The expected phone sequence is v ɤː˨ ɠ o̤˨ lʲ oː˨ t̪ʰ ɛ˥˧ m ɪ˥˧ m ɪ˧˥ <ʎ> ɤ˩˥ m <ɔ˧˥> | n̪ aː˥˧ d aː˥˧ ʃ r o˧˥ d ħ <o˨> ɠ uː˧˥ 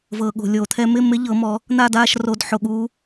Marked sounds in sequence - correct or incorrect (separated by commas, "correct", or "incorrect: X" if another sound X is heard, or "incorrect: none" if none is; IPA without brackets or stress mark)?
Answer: correct, incorrect: ɔ˩˥, correct